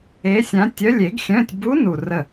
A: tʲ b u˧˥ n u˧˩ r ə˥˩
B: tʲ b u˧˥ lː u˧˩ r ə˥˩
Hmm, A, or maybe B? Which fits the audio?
A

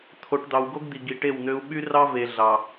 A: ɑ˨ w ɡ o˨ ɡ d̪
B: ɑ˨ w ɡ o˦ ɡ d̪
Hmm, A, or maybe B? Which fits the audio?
B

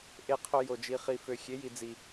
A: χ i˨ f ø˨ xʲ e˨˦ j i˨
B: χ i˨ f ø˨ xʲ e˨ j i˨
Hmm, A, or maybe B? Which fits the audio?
A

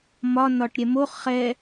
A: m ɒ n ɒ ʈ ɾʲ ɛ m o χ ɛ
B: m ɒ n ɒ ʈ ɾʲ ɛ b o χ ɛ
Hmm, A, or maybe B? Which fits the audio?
A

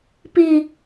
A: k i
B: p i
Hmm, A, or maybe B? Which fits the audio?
B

